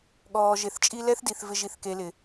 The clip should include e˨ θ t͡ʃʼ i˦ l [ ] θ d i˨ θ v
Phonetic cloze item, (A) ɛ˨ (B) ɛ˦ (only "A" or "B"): B